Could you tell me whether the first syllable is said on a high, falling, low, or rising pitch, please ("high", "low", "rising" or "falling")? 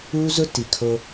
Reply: high